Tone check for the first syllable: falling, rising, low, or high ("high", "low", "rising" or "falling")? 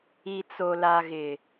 low